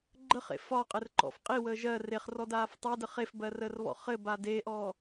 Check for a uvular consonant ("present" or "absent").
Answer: present